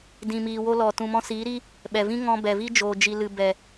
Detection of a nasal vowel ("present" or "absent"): present